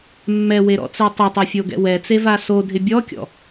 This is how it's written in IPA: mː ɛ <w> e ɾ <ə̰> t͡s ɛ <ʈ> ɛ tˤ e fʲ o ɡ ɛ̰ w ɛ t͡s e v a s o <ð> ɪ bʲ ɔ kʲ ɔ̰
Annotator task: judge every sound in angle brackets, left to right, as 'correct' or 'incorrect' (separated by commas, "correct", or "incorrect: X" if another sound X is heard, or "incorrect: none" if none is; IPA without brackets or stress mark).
correct, incorrect: ɔ̰, incorrect: tˤ, incorrect: dʱ